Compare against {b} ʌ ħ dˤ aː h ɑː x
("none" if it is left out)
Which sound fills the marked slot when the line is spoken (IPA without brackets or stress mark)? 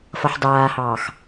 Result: f